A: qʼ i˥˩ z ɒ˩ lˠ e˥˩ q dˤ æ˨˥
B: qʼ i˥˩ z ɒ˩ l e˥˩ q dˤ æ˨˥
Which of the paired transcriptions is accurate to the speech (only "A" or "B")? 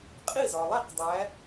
A